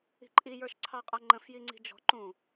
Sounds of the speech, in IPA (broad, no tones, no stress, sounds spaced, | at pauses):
i̤ ǃʼ i j ə˞ ʃ ǀʰ ɑ qʼ ʌ ŋ͡ǃ ə̃ f j i ŋ͡ǀ i̤ d͡ʒ ɔ̤ ǃ ũ